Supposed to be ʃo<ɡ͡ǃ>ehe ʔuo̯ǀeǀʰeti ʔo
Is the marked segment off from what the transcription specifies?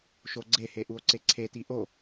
yes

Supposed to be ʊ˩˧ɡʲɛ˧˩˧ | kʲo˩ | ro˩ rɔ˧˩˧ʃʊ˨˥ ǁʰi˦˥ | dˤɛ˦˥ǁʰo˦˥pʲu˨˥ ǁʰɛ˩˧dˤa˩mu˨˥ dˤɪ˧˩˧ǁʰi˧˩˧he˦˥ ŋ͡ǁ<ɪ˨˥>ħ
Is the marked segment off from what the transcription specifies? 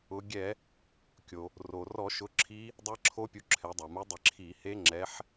yes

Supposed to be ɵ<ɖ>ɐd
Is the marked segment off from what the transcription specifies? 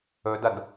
yes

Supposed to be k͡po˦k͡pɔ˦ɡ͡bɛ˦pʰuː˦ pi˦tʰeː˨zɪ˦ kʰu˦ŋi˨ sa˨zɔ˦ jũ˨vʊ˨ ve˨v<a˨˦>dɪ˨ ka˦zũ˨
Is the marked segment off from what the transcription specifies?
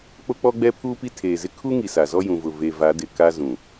no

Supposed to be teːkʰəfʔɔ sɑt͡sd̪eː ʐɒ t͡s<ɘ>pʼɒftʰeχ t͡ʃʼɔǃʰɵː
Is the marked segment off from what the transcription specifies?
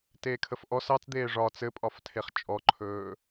no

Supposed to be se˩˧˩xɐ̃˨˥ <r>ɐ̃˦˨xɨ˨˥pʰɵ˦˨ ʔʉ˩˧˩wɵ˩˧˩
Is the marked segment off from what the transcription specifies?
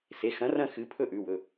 no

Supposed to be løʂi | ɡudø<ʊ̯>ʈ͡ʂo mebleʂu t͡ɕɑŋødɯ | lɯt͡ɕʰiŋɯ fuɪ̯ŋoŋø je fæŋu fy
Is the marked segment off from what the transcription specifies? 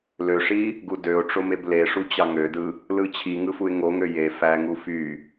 no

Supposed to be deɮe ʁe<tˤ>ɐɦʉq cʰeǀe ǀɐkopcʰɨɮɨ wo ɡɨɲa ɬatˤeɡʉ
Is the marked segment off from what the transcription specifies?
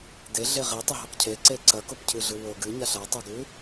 no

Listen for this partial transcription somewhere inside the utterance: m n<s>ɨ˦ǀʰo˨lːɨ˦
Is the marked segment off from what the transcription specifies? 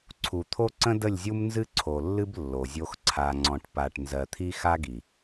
yes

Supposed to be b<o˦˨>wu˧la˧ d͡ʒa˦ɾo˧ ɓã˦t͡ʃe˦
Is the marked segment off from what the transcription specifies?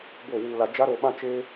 no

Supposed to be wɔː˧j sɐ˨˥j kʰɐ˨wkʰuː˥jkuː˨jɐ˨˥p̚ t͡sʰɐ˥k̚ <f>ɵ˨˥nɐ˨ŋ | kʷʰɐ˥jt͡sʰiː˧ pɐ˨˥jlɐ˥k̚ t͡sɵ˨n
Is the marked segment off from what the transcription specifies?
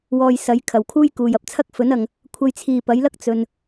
no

